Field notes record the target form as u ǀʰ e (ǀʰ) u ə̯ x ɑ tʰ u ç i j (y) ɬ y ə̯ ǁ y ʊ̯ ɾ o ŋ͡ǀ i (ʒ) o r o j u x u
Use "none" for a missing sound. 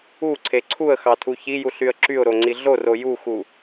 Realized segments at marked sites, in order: ǀʰ, u, ɮ

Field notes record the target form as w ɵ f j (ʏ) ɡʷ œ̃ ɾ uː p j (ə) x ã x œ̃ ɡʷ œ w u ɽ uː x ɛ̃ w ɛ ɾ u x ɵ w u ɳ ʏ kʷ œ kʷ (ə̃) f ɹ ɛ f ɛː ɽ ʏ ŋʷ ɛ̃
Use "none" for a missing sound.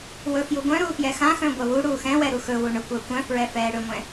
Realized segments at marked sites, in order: u, ɛ, œ̃

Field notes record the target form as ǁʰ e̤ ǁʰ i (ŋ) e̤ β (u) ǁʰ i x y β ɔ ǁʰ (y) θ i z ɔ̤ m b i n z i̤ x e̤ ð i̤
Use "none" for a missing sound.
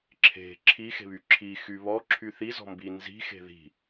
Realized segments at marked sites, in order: x, y, y

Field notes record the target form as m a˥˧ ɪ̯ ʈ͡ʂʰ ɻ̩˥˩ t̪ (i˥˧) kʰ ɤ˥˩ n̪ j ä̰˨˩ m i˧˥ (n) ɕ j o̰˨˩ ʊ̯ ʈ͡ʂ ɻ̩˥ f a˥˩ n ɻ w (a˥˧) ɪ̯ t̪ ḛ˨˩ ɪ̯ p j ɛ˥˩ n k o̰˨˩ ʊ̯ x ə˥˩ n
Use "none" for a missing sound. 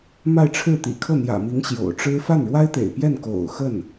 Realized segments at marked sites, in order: ḭ˨˩, ŋ, a˥

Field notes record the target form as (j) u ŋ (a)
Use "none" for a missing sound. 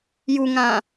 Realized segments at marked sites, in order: j, ã

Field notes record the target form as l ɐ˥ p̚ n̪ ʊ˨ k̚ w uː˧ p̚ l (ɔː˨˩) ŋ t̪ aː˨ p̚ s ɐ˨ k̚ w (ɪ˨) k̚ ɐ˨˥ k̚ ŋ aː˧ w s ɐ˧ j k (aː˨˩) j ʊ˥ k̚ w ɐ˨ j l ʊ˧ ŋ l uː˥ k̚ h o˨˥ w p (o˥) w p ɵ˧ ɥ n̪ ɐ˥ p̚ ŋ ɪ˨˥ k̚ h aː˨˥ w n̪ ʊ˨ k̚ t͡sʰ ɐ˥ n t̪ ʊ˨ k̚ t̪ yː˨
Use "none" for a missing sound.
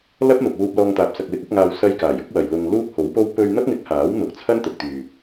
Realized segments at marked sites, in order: ɔː˧, ɪ˨˥, aː˨˩, o˥

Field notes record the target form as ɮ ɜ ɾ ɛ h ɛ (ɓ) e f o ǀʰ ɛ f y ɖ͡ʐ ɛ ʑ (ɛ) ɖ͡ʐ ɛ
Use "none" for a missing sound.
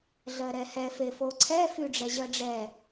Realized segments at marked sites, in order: f, ɜ

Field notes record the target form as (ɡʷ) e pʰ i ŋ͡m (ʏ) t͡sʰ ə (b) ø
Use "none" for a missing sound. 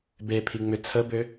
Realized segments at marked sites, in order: b, ʏ, b

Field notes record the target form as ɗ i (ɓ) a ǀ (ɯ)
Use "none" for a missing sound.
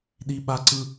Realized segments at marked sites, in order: ɓ, ɯ

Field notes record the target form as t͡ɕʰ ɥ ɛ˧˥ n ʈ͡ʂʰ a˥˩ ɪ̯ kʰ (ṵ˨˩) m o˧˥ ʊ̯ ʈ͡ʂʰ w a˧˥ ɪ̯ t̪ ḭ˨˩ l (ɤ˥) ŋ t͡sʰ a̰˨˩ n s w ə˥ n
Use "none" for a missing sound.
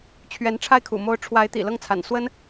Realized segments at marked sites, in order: ṵ˨˩, ɤ˥˩

